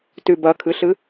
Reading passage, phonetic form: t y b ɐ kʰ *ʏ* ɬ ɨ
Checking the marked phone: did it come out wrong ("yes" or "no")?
yes